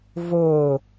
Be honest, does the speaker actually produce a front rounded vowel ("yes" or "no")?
no